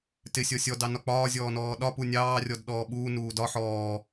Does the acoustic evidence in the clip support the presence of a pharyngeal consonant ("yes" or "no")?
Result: yes